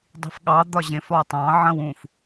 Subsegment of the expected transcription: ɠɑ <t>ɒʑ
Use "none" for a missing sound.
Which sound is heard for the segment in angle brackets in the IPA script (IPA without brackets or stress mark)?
d̪